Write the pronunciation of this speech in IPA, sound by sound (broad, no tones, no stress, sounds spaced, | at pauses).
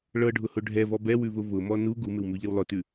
ɭ ɤ ɖʱ ʊ h ʊ ɖʱ ɛ v ɔ b ɛ w ʉ v ʊ v ʊ m ɔ n u ɡ u m ɪ w m ʉ ʎ ɪ w lˠ ʊ t ʉ